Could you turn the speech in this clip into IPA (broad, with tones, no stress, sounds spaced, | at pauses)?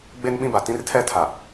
ɡ͡b e˦ n ɓ ĩ˦ b a˨ t ĩ˦ r tʰ ɛ˦ tʰ a˨